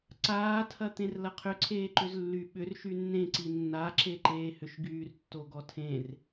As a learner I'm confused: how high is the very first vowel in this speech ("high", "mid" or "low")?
low